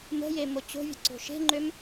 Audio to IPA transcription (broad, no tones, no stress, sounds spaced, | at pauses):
m ə̤ j e m o t͡ɕ o̤ vʲ ə̤ ǀ o̤ ʃ e̤ ŋ͡ǃ ø m